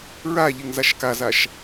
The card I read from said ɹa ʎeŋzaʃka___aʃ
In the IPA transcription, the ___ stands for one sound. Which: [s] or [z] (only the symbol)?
z